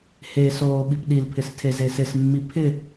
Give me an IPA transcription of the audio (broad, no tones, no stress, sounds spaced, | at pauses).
h e s oː ɓ i p ɗ i l pʰ ɪ s tʰ e z e s ɪ s mː i pʰ ɪ